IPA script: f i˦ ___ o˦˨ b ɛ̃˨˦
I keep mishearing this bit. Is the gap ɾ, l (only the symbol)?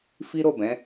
ɾ